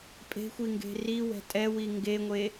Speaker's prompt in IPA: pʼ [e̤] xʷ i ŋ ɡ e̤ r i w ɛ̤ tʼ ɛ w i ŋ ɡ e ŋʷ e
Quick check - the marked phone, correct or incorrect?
correct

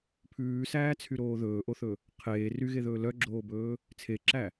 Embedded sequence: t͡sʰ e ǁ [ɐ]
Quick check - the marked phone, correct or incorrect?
incorrect: æ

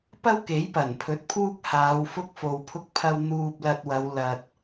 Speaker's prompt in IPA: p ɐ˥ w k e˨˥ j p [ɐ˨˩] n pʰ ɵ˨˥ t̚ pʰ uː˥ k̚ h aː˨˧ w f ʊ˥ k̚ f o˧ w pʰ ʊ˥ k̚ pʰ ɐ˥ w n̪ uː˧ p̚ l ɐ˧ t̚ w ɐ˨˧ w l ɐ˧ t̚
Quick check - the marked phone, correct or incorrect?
correct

